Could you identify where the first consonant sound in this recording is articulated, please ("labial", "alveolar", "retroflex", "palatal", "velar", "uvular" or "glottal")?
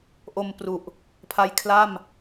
glottal